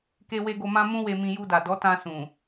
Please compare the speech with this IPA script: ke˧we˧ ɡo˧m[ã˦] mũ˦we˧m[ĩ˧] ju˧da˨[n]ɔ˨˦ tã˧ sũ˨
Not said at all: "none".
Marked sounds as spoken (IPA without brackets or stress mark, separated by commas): ã˦, ĩ˧, d